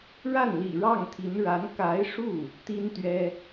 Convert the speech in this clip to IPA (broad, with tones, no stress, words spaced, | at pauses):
ɻa˥˩nlḭ˨˩ ɻɑ˥˩ŋt̪ʰi˧˥n ɻa˧˥n ka˧˥ɪ̯ʂu˥˩ | t̪i˥nt̪ɥɛ˥